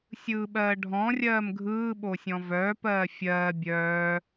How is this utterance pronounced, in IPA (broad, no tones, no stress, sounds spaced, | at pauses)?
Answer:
sʲ ɯː ɓ ɜː ɖʱ ɔ̃ rʲ ɜː m ɡʱ ɯː ɓ o sʲ ɔ̃ v œː p ɜː fʲ ɜː bʲ œː